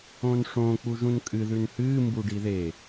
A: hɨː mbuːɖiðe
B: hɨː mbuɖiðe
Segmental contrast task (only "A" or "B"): B